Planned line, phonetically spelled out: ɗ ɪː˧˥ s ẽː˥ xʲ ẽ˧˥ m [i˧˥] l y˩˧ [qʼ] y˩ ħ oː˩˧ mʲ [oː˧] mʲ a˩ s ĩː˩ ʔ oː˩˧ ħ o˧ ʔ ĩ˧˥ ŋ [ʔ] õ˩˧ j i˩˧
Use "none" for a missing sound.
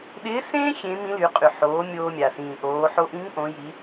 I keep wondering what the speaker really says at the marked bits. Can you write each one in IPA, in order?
ĩ˧˥, qʼ, oː˧, ʔ

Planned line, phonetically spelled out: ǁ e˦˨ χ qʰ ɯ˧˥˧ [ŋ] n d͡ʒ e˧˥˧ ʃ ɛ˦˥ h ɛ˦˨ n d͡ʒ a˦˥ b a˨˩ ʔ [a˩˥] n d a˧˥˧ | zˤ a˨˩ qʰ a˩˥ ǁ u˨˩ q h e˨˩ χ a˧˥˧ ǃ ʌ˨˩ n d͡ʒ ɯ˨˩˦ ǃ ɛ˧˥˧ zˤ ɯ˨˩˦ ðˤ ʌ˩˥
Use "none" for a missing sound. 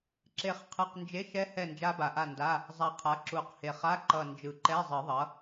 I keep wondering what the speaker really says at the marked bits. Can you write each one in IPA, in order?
q, a˦˨

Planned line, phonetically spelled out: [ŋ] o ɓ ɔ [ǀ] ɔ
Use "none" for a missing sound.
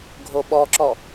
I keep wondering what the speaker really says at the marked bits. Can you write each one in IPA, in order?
ɡʱ, ǁ

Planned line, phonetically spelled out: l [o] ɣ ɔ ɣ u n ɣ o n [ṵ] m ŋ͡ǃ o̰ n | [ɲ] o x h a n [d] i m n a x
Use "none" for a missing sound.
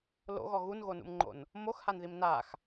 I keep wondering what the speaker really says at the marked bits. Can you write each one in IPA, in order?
o̰, ṵ, m, ð

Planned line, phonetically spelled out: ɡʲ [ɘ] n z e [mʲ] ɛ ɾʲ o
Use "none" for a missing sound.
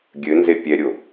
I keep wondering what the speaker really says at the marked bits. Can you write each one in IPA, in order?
ɘ, pʲ

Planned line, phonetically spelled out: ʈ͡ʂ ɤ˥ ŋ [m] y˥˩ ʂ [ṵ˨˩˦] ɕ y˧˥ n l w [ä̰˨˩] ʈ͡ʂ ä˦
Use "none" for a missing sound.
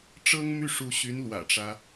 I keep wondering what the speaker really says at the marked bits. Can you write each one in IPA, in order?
m, u˧˥, ä̰˨˩

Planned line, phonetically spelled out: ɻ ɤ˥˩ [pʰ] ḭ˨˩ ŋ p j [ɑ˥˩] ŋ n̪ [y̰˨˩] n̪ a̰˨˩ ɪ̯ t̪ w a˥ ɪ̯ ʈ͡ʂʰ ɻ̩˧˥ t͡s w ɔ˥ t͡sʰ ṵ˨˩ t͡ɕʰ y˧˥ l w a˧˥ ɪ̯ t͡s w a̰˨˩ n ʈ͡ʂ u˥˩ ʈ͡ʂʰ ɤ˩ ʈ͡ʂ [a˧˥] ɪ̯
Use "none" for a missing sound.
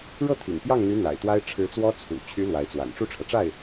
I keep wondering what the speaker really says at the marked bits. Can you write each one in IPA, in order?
t̪ʰ, ɑ˥˩, y˧˥, a˥˩

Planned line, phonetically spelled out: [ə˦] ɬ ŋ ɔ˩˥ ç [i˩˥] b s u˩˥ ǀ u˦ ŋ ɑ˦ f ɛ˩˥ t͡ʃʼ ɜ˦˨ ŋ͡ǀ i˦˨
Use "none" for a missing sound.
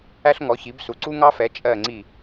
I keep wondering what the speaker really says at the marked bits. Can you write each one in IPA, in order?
æ˦, i˩˥

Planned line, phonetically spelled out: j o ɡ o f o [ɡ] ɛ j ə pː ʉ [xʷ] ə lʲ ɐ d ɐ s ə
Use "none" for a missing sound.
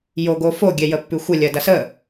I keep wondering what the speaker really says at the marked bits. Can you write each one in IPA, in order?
ɡʲ, xʷ

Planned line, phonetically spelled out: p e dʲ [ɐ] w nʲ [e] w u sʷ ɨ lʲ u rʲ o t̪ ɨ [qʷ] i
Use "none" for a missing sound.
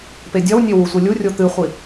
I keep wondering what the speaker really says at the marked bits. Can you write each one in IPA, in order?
ɐ, e, χʷ

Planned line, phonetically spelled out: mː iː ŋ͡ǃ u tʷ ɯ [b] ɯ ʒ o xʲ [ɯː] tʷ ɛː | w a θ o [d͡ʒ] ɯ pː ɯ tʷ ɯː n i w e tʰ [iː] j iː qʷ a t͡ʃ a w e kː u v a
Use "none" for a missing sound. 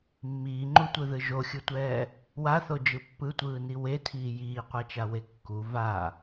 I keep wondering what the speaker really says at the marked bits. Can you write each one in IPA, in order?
ð, ɯ, d͡ʒ, iː

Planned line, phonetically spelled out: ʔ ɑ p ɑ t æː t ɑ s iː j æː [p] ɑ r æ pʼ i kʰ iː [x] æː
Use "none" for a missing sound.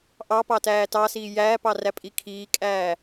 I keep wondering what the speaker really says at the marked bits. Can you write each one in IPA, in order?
p, kʼ

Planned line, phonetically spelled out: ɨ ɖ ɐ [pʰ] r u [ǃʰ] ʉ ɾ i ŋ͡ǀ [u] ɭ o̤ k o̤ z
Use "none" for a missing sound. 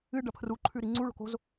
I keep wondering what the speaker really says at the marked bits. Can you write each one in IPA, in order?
pʰ, ǃʰ, u

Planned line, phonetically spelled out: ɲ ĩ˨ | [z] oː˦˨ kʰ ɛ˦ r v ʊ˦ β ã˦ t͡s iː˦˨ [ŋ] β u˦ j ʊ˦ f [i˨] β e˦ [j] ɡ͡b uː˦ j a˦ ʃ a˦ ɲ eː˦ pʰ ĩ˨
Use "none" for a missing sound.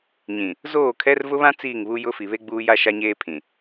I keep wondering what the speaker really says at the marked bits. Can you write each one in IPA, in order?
z, ŋ, i˨, none

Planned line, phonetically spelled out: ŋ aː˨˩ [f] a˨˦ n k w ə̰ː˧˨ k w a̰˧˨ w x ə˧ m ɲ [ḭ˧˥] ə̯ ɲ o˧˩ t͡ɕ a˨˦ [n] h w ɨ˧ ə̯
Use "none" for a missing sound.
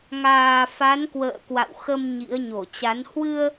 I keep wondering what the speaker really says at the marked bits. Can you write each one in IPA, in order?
f, ḭ˧˥, n

